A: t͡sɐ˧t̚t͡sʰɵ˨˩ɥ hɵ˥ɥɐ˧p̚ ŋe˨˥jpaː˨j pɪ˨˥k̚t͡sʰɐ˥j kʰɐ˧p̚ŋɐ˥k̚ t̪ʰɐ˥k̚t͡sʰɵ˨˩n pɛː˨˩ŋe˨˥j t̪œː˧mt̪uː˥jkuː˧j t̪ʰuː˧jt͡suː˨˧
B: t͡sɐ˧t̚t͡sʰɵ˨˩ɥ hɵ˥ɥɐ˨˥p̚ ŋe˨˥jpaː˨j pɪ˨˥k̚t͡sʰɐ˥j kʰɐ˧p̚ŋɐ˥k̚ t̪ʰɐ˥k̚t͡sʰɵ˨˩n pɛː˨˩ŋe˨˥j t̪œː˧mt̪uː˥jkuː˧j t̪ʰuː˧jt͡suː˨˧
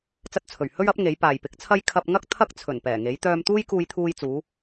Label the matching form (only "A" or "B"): B